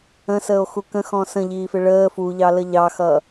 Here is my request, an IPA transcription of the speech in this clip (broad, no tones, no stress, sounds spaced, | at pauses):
ə̃ s əː o̯ x u k ə̃ x ɔ̃ s ə̃ ʎ iː f ɪ ɭ əː f u ʎ ɑ l ə ʎ ɑ x ʌː